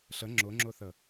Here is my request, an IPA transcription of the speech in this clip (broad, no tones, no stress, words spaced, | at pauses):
ɬə ŋ͡ǁʊŋ͡ǁʊθə